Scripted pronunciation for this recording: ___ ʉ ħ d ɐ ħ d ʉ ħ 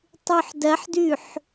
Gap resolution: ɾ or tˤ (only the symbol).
tˤ